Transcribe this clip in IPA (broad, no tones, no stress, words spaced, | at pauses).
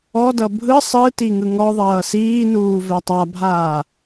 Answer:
ɔdʌ bʱɯ sˤɯ tiŋɯŋɔðˤʌː siːnuː vɛtˤabʱaː